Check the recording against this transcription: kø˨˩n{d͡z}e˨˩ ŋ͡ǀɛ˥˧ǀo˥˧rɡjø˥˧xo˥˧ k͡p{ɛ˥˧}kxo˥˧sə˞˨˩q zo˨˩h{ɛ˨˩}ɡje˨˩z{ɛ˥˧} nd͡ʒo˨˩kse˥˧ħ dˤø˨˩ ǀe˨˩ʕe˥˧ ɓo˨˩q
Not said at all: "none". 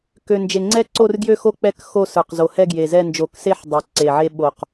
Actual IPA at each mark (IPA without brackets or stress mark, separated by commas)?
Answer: d͡ʒ, ɛ˥˧, ɛ˥˧, ɛ˥˧